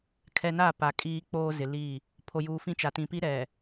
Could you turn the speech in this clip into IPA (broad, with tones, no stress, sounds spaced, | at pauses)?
kʰ ɛ˨ n a˦˨ p a˨ kʼ iː˦ k͡p oː˦ z ɪ˨ l i˦˨ | pʰ o˨ j uː˨ f ĩ˦ t͡ʃ a˨ t ĩ˨ p i˦ ɾ ɛ˨